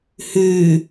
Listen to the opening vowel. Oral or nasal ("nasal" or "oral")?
oral